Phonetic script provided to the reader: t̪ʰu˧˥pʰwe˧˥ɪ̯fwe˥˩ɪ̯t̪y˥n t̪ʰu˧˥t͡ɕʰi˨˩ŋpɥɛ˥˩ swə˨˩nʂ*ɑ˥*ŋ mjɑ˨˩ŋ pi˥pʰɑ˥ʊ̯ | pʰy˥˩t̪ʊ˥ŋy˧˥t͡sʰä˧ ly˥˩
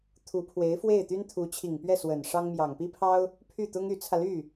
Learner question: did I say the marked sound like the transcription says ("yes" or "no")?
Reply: yes